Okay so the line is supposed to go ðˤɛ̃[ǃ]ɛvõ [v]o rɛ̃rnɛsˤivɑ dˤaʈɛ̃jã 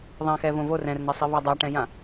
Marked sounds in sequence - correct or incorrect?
incorrect, correct

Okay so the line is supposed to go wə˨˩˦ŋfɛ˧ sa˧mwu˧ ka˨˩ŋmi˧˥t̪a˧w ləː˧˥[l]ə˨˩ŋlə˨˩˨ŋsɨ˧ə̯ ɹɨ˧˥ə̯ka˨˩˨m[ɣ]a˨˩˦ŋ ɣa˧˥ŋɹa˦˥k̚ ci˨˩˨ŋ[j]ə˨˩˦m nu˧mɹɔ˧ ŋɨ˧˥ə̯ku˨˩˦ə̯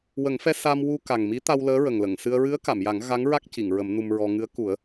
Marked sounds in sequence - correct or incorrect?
incorrect, incorrect, incorrect

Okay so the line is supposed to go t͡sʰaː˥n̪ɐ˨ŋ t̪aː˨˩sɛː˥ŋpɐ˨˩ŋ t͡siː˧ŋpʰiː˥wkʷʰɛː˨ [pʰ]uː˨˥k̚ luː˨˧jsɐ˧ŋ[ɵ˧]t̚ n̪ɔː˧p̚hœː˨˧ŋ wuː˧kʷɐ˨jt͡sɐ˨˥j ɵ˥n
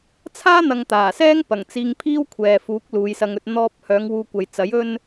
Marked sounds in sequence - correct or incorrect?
incorrect, correct

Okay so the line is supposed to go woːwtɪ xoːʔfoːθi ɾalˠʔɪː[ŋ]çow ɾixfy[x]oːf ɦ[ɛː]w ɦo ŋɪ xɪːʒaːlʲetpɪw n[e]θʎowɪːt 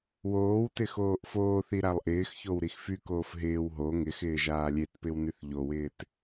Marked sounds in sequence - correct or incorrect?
incorrect, incorrect, incorrect, incorrect

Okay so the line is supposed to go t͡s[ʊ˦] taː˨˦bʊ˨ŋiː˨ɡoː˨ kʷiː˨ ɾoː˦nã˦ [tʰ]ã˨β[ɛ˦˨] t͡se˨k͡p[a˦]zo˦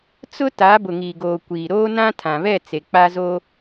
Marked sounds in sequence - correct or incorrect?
correct, correct, correct, correct

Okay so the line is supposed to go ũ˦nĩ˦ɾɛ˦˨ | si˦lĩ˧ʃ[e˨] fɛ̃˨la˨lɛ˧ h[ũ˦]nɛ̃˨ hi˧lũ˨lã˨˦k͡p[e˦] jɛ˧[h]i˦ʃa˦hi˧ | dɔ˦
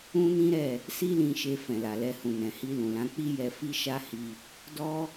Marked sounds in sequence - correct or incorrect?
incorrect, incorrect, incorrect, incorrect

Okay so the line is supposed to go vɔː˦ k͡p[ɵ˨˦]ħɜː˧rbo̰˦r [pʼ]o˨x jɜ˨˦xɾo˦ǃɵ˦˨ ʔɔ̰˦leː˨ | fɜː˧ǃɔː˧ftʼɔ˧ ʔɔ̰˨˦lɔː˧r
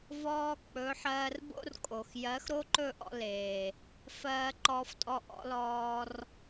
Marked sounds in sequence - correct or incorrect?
correct, incorrect

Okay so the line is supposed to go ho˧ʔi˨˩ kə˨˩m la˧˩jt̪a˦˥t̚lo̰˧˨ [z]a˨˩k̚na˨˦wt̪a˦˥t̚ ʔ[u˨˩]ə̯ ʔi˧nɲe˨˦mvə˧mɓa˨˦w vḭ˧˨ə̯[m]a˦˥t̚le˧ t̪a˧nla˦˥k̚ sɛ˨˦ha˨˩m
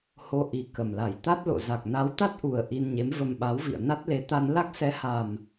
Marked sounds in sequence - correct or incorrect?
correct, correct, incorrect

